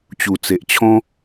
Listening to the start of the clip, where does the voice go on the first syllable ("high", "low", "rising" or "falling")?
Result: low